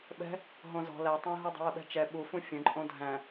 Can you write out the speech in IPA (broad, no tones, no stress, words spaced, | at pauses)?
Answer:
ɓɛ̤ | ɦõzɔ̤ lætˤæ̃ɦudˤə̤ wəɓɛ̤t͡ʃɛ ɓufũ fʲə̃ǃʼõ dʱæ̃